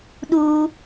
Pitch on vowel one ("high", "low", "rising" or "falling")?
high